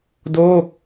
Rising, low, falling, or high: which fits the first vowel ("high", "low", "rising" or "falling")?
falling